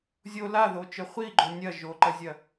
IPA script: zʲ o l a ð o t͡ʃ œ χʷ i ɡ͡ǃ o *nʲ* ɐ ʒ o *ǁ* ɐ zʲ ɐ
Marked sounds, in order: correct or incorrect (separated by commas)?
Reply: correct, incorrect